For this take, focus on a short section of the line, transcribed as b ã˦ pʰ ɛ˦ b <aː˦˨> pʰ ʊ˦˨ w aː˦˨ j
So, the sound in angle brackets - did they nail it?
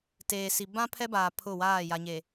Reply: no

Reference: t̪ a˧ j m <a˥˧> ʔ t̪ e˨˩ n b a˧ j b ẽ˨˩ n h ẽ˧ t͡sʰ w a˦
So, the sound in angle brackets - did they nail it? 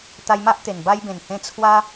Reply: no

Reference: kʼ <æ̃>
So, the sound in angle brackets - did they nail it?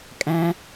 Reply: yes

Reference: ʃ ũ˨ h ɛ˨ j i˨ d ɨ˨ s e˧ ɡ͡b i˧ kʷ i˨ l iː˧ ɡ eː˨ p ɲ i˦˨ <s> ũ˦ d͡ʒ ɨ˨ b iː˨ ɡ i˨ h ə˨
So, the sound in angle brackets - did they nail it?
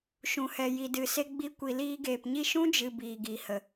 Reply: no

